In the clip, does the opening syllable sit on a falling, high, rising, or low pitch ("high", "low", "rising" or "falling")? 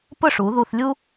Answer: falling